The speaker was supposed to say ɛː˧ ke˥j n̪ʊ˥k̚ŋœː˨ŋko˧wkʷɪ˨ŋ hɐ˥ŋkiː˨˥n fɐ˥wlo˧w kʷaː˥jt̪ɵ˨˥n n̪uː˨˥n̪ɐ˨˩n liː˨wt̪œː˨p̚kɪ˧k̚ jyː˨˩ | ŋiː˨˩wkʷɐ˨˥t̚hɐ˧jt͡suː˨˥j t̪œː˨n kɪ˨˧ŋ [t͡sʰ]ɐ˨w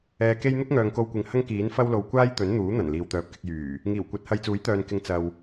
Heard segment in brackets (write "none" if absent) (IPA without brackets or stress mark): t͡s